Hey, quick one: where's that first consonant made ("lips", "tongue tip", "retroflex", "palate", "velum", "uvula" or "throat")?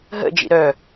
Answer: throat